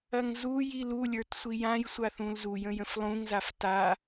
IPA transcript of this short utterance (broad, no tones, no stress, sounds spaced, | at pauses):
ɐ ŋ z u j i l u lʲ ə˞ t sʷ i j ã j sʷ a θ ũ l z u j ə̃ j ə̃ f lˠ ũ ŋ z a f t a